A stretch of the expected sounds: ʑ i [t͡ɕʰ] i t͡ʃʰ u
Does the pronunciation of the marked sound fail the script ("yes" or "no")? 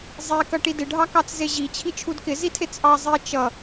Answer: no